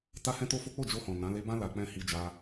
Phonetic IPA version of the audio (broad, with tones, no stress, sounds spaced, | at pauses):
t a˦ h ɛ̃˦ t o˦ f o˦ k͡p o˦˨ d͡ʒ o˧ h ɔ̃˨ n ã˨˦ l e˧ b ã˦ l a˧ k͡p ɛ̃˦ h i˧ d͡ʒ a˧